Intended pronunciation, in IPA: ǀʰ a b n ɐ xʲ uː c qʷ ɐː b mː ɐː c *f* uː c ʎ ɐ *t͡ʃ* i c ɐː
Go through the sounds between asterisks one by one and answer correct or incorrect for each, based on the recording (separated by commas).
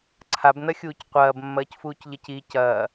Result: correct, incorrect